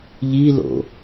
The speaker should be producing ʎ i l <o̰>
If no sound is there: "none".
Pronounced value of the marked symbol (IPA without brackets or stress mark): o̰